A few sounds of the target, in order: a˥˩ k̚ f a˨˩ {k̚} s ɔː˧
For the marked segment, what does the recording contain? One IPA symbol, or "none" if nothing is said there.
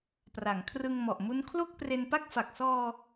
k̚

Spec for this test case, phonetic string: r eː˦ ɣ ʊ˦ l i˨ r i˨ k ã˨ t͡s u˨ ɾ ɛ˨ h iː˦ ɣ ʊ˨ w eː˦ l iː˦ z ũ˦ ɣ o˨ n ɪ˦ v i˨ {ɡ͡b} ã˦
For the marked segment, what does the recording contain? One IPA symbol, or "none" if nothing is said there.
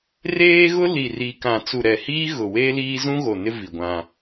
ɡʷ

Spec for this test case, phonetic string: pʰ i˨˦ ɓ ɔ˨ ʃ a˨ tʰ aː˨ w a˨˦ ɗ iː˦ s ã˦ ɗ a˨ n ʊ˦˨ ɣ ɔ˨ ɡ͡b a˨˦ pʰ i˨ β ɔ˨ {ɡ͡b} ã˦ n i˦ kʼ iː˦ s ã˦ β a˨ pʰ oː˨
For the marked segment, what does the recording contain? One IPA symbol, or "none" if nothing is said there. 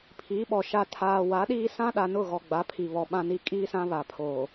ɓ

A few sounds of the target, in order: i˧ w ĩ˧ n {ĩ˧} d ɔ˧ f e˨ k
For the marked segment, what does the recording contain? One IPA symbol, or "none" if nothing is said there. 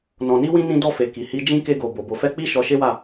ĩ˧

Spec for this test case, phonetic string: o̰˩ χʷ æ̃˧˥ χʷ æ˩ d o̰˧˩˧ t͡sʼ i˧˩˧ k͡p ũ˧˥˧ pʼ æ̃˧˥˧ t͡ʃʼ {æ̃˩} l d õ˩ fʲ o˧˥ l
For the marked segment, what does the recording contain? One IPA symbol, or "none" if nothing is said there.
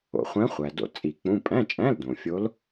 æ̃˧˥˧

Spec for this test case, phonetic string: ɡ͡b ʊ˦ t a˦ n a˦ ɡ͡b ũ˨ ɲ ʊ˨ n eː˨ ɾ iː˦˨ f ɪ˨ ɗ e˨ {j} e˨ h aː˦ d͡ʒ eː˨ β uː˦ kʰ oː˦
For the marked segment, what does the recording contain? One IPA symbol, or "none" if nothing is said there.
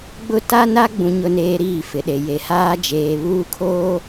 j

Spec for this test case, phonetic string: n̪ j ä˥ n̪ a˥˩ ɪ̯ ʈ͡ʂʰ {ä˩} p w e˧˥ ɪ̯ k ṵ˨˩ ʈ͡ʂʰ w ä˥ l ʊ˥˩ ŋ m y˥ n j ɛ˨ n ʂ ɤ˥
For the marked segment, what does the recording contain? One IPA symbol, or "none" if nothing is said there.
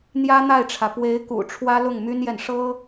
ä˩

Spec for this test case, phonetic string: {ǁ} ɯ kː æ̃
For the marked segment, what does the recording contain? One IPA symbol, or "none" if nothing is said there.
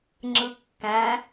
ŋ͡ǁ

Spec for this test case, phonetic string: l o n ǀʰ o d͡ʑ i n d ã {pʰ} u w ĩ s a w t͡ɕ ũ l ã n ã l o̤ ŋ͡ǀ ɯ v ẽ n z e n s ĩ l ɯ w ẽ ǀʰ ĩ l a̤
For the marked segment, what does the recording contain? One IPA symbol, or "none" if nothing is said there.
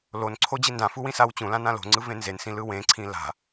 f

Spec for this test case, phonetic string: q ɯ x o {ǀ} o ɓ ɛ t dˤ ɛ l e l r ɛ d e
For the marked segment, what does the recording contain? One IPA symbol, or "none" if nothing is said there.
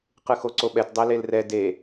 ǀ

